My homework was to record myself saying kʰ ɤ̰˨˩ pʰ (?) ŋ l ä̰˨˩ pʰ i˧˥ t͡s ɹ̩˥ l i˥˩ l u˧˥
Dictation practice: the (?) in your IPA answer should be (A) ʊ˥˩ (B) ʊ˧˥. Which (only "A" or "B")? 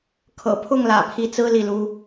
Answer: A